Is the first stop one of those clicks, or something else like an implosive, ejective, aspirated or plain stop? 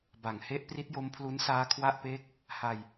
plain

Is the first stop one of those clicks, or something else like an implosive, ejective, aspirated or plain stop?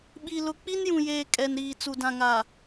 implosive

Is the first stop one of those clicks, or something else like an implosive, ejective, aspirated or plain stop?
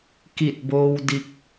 plain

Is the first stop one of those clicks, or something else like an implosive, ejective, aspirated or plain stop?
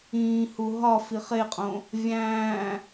ejective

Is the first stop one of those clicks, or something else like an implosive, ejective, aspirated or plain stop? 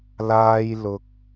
plain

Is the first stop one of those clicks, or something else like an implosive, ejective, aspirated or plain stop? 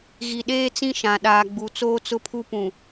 implosive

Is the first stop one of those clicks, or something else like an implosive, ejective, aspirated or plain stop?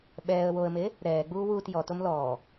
implosive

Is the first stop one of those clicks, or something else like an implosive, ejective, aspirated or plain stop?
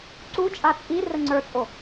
click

